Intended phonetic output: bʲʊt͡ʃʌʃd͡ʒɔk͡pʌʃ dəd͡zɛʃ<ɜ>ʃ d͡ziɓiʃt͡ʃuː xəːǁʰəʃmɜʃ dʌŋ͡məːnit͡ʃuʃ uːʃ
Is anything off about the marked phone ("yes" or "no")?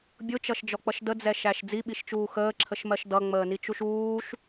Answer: yes